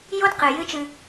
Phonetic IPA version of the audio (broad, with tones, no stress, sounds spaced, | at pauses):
j o˦ d q ɨ˨ j ɨ˦ t͡ʃ ɨ˧